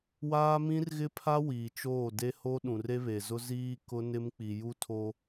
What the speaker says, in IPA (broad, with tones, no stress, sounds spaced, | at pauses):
w aː˦ m ĩ˦ r ɣ ɪ˦ pʰ a˦ w iː˨ t͡ʃ oː˦˨ d e˦ h o˦ ɗ ũ˨ r e˦ β e˨ z ʊ˦ z iː˦ k ʊ˦ n ɪ˦ m k͡p i˨ j u˦ tʰ o˦